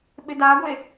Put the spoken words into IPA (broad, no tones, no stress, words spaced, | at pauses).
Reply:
ɓɪdaɡʷe